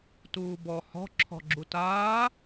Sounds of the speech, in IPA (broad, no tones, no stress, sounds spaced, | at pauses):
t uː b ɔ h ɔ̤ ǁʰ ɔ̤ ɡ͡ǁ u t aː